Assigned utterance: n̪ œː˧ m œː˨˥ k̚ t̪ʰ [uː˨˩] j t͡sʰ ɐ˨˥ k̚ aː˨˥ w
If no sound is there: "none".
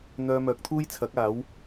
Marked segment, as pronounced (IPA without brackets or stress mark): uː˥